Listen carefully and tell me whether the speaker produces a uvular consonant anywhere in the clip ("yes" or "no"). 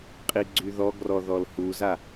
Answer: yes